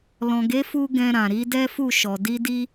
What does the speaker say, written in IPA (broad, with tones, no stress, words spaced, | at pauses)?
lɔ̃˨ɡe˨˦fu˧ ɡɛ̃˧ɾã˨ ɾi˨˦dɛ˦fu˦˨ ʃɔ˨ di˧di˧